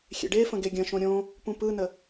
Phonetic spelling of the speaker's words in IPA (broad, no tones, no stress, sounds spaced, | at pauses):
xʲ ḛ ɖ e f ə̃ ɡ e ɡʲ ə̃ ʃ õ ɾʲ õ | p ũ p ɯ n ə